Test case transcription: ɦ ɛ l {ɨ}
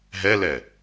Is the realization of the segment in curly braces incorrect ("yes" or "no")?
yes